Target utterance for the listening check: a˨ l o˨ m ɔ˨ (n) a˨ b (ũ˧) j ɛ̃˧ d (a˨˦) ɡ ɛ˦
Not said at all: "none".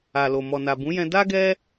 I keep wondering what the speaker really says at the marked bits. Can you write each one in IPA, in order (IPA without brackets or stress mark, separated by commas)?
n, ũ˨˦, a˦